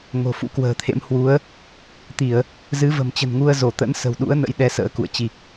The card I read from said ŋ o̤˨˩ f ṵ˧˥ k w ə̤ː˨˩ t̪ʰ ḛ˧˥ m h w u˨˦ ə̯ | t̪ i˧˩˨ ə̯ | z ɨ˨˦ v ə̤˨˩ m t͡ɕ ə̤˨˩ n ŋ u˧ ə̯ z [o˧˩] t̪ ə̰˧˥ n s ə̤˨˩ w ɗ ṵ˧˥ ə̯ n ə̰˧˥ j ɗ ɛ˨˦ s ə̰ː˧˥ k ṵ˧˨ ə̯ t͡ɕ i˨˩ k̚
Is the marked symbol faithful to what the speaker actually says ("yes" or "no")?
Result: yes